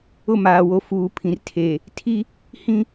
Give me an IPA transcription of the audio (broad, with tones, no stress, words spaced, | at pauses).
ʊ˦˨maː˨wo˨ fuː˨pʰĩ˨rtʰe˨ | tʰi˦ | hĩ˦